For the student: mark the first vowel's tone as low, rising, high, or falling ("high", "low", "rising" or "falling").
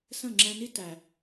falling